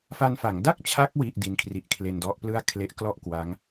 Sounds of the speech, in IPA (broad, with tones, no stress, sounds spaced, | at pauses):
f a˧ n f a˩˦ ŋ d a˥˩ k̚ t͡ɕʰ a˦˥ k̚ w i˥˩ ʔ d i˦˥ n kʰ r i˦˥ ʔ kʰ l e˧ n d ɔ˦˥ ʔ p l ɯ˥˩ a̯ kʰ l e˦˥ ʔ k l ɔ˥˩ ʔ k w a˦˥ ŋ